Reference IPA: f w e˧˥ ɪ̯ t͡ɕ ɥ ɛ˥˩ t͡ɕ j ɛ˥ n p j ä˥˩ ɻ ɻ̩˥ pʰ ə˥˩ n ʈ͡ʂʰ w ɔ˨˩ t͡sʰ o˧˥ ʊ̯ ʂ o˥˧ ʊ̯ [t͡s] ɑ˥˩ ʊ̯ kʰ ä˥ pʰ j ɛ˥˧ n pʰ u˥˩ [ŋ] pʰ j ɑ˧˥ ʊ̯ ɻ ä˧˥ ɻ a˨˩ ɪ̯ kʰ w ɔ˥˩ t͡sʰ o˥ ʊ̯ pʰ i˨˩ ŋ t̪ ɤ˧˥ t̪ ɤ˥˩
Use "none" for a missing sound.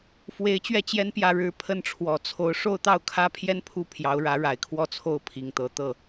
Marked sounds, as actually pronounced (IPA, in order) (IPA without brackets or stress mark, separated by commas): t̪, none